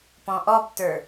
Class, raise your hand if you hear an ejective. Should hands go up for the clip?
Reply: no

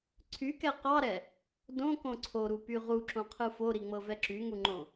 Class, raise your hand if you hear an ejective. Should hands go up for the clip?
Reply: no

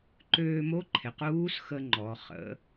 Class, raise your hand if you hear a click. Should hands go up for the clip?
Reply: yes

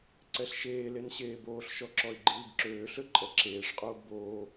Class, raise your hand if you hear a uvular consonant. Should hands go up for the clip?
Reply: yes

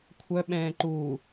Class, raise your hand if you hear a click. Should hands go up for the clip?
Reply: yes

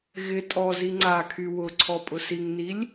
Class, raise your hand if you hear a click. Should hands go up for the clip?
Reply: yes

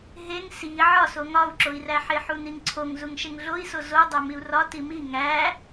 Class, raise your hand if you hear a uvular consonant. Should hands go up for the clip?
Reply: no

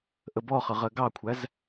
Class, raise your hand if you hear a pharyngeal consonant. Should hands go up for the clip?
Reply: no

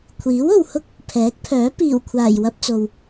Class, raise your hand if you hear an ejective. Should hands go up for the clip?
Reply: no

